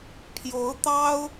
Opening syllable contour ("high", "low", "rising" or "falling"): rising